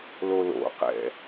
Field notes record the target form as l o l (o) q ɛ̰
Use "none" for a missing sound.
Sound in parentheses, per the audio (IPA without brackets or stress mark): o̰